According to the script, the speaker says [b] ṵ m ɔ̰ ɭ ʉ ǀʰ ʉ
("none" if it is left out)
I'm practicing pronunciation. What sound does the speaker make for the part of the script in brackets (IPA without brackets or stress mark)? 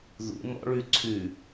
ð